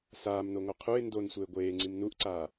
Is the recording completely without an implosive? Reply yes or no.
yes